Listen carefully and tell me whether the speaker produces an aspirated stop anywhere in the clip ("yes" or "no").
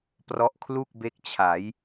yes